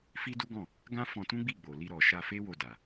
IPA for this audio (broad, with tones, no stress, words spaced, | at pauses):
fi˦ du˦ɡɔ̃˦˨ | ɡã˦ fɔ̃˧tũ˦ɡ͡bi˦˨ ɡ͡bo˨li˧ɾɔ˨ ʃa˧fe˦wo˧da˨